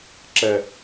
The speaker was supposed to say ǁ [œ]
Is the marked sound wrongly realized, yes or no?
yes